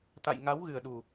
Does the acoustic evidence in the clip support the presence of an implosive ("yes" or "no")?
yes